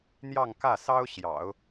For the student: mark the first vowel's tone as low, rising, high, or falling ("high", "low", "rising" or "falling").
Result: falling